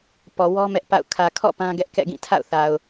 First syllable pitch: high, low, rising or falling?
low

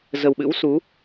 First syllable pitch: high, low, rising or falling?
low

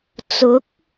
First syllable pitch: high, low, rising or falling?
rising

